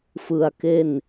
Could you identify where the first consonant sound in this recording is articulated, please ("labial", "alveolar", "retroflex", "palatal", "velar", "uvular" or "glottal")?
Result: labial